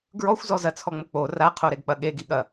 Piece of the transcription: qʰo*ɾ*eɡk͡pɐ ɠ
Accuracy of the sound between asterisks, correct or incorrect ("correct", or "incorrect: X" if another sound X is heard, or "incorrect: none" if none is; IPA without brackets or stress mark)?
correct